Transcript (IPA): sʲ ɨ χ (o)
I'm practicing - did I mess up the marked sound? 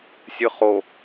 no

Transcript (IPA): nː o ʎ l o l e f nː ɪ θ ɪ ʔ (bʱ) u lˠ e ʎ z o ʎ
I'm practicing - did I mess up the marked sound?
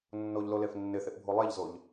no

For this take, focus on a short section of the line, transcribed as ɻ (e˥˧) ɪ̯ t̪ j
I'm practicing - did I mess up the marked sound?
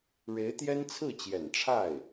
yes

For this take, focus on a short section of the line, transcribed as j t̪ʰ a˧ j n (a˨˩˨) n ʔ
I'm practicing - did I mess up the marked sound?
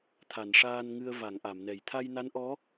yes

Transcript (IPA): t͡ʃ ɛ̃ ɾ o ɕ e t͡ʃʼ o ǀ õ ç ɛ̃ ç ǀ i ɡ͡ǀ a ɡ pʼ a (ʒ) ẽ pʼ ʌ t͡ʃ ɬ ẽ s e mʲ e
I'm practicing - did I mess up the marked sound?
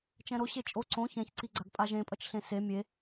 no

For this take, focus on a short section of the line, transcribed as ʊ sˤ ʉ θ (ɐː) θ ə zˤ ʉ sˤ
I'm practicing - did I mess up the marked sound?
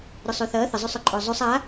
no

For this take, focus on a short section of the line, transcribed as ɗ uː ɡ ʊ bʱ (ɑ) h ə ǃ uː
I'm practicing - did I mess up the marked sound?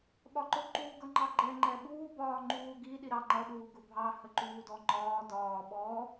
no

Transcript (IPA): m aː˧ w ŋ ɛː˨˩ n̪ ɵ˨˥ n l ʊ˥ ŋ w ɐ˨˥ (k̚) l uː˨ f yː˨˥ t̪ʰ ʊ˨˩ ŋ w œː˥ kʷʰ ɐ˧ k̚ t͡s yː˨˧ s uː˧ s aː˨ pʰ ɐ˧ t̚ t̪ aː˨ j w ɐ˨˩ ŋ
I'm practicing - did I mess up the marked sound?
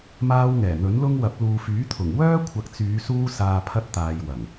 yes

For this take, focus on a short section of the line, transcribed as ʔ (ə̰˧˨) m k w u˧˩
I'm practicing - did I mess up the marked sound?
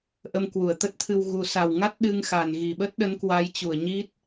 yes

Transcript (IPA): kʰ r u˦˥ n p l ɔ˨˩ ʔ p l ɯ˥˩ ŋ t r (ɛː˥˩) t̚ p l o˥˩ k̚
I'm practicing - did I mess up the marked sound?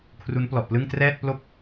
no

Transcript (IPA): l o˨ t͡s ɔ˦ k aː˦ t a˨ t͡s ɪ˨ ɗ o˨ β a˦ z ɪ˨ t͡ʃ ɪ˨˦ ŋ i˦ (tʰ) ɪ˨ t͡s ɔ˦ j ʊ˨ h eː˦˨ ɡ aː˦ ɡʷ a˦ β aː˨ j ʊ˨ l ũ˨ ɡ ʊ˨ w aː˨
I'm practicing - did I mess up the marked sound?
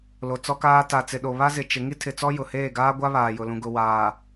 no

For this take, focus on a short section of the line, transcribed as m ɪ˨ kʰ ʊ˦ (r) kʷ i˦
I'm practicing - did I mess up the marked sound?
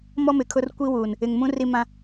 no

